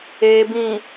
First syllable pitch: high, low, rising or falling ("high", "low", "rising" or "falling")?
low